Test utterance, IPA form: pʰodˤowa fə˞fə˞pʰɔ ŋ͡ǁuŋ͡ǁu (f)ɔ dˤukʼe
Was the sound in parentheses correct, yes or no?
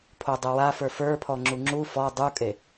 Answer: yes